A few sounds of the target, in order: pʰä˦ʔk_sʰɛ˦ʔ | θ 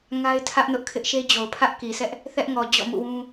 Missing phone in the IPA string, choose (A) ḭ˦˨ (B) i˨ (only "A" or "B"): B